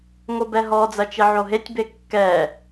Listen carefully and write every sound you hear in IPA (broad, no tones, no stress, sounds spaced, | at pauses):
ŋ o b ɛ ɦ ɔ d͡z ɐ t͡ʃ e ʕ o ɦ e tʲ b e kː ɛ